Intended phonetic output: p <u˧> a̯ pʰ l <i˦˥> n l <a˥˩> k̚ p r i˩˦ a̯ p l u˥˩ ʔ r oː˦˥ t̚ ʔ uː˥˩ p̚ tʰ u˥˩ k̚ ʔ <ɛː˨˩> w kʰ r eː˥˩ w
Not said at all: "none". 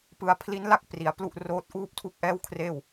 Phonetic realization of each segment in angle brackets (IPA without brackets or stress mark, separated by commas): ɯ˧, i˦˥, a˥˩, ɛː˥˩